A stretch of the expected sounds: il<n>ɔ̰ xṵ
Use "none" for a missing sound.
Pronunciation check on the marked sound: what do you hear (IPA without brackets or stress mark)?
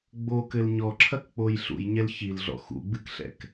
ɮ